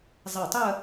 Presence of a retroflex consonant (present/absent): absent